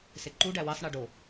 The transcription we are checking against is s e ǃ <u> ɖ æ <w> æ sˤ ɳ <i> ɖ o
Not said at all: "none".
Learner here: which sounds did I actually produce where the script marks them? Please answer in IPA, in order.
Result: u, w, e

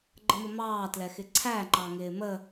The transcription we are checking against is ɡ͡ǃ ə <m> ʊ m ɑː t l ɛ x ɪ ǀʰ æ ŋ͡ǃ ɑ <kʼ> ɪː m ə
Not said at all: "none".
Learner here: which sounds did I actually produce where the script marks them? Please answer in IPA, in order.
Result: m, ŋ

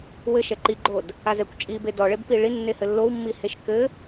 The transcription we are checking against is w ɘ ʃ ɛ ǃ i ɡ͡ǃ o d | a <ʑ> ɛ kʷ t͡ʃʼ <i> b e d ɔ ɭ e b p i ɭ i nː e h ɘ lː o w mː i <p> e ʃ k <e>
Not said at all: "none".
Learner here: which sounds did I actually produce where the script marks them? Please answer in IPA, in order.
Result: z, i, h, ɘ

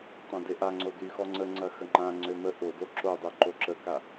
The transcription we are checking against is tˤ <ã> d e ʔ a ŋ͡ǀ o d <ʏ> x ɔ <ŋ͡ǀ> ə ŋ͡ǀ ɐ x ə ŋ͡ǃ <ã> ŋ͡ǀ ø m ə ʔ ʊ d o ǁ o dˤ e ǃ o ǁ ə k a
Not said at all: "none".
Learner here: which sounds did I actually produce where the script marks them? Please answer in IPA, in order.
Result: ã, y, ŋ͡ǀ, ã

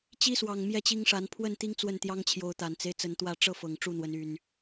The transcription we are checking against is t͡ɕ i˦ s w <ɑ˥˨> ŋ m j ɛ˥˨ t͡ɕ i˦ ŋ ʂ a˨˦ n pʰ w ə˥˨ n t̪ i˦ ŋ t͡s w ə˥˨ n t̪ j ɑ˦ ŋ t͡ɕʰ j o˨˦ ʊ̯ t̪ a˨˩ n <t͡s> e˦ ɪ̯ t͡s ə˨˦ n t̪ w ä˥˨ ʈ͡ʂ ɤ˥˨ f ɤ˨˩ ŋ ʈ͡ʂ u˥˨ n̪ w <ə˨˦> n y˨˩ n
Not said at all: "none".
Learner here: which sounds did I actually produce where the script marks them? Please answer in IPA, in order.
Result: ɑ˨˩, t͡s, ə˨˦

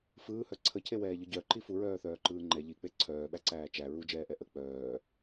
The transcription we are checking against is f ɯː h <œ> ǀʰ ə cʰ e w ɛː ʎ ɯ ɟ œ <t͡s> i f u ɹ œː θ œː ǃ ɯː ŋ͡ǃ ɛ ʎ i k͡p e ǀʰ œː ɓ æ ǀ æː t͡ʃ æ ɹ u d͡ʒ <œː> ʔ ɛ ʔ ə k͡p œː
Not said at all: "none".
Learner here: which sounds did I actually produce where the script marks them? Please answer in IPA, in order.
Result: œ, ǃ, ɛː

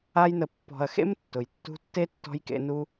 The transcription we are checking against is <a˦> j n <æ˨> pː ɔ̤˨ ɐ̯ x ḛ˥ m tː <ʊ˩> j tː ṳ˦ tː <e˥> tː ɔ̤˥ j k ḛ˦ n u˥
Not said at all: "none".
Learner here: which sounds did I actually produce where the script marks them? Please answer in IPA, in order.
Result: a˦, ə˨, ʊ˩, e˥

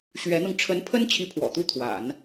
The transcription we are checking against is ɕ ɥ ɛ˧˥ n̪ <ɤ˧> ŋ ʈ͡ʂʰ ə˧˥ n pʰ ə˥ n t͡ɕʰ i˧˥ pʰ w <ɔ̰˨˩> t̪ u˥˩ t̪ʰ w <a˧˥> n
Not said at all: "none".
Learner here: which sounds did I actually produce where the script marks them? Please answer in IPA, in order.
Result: ɤ˧, ɔ̰˨˩, a̰˨˩˦

